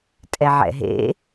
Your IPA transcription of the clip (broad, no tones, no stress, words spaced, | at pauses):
tʼɛʕɛ̰ɦḛ